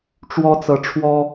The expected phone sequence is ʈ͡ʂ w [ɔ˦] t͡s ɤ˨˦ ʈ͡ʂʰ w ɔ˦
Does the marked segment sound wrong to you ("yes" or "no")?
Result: no